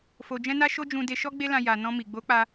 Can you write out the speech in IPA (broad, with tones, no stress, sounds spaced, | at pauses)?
f o˧ d͡ʒ ɛ̃˦ n a˦ ʃ o˦ d͡ʒ ũ˧ d e˧ ʃ ɔ˦ ɡ͡b e˦ l ã˧ j a˨ n ɔ̃˧ m i˨ ɡ͡b o˨˦ k͡p a˧